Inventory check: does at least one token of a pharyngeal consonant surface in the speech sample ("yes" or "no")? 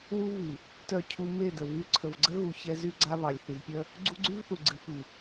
no